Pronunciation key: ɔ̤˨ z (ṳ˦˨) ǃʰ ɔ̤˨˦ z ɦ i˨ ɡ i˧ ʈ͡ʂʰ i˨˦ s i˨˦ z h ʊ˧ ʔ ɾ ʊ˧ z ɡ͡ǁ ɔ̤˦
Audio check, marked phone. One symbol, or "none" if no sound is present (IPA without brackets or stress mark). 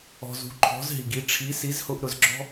ṳ˨˦